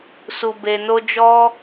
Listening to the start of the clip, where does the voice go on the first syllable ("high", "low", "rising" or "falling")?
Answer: low